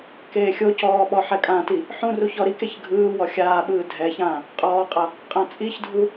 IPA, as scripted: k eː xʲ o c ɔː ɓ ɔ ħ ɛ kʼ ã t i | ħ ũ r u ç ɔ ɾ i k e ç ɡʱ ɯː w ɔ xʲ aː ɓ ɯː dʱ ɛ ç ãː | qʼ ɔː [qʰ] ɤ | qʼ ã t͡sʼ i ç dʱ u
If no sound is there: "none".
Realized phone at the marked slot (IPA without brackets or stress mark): qʼ